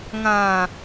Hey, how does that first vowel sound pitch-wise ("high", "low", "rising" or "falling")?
low